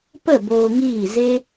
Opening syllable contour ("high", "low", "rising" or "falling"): falling